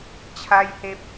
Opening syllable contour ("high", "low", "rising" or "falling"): high